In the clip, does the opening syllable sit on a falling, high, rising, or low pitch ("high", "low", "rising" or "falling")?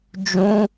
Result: high